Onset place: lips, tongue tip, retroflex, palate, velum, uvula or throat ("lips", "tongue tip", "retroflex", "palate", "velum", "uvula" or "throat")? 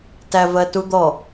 tongue tip